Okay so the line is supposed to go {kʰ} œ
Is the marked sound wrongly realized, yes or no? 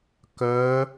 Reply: yes